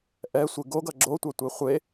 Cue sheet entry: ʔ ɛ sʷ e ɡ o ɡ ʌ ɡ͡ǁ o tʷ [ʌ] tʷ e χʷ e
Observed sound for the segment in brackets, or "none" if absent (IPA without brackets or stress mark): a